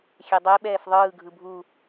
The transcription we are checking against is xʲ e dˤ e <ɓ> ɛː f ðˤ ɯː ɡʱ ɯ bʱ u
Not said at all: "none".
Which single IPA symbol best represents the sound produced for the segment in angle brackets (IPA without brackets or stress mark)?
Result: ɓ